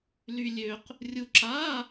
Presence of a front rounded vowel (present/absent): present